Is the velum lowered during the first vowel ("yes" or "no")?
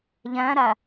yes